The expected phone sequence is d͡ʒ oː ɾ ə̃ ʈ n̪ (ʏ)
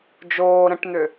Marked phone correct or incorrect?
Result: correct